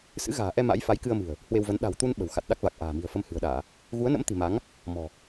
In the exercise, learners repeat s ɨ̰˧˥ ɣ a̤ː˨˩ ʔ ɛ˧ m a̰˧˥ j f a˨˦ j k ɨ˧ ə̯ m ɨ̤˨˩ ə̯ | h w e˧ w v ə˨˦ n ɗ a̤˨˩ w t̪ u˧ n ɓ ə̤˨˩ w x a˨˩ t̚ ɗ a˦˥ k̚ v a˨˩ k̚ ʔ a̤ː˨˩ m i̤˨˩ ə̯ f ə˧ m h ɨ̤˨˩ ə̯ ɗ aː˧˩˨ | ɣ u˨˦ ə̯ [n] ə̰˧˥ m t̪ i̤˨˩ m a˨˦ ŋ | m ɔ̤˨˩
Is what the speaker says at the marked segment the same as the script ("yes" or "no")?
yes